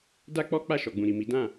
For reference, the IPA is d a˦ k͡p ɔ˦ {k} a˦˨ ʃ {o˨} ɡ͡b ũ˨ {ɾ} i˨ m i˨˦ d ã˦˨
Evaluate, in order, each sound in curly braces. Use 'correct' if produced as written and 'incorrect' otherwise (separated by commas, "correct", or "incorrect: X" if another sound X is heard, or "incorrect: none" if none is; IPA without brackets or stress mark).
incorrect: k͡p, incorrect: ɔ˨, correct